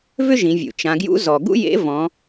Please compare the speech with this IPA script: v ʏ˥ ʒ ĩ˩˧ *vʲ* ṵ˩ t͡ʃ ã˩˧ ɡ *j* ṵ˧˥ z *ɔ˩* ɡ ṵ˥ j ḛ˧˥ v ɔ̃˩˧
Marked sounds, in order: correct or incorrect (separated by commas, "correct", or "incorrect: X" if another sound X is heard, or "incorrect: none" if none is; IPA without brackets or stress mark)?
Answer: correct, correct, correct